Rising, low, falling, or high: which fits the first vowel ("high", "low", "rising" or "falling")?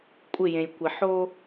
falling